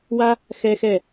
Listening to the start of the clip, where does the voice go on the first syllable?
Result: high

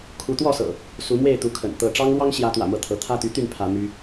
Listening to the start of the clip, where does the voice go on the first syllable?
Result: rising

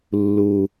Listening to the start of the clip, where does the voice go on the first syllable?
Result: low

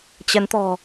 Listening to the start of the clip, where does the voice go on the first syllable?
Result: rising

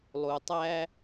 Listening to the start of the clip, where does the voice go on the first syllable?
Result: low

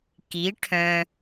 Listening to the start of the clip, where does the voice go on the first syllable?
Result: rising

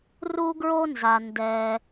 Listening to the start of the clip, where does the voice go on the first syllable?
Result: high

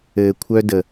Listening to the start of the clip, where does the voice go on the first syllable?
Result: low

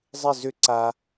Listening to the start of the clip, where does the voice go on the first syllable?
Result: falling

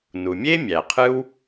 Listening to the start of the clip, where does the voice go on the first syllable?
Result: low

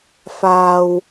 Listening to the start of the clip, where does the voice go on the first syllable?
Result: low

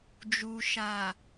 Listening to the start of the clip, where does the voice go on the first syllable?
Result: low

